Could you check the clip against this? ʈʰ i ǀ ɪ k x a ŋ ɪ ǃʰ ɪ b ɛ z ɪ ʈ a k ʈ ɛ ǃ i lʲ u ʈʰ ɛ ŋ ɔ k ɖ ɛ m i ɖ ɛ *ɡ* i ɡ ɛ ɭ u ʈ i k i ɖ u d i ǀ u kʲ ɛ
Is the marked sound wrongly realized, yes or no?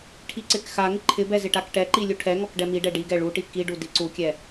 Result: yes